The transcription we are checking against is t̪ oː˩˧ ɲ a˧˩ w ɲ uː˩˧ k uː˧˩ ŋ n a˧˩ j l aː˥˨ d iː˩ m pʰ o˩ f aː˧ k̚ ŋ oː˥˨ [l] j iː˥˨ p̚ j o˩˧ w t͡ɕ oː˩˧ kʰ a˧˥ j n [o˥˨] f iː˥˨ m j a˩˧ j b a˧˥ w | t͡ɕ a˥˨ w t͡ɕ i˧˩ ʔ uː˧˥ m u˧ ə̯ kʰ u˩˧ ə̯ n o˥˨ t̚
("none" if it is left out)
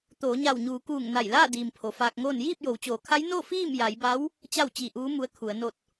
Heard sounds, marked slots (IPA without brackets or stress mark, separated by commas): n, o˥˨